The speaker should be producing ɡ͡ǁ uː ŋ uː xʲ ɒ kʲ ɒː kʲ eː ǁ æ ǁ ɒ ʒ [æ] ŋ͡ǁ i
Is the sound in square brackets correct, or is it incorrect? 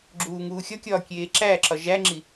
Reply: correct